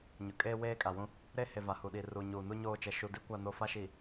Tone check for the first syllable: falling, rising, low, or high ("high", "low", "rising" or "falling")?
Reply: low